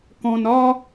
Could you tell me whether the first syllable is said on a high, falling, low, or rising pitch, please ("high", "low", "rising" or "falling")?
low